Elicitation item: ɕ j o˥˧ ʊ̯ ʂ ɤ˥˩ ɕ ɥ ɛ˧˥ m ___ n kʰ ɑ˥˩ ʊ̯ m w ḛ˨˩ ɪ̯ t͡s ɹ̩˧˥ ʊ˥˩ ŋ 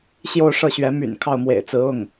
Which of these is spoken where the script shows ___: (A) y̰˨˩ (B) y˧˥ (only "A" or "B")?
A